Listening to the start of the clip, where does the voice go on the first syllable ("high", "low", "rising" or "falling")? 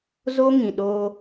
high